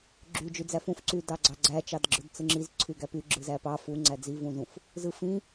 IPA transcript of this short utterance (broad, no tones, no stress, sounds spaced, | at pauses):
ɡ͡ǁ y d͡ʒ y d͡z æ f ũ f ǀ y d ɑ ɡ͡ǀ ɑ ɡ͡ǀ æ t͡ʃ ɑ d ɡ͡ǁ ɯ d t͡s ɯ ŋ͡ǁ i z ǀʰ y ɡ æ p y ɡ͡ǁ ɯ z æ p ɑ f u ŋ͡ǀ æ d͡z i v ũ z ũ f | z ɯ f ĩ